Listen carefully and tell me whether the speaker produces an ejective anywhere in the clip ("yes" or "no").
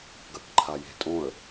yes